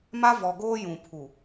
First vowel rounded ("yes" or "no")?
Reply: no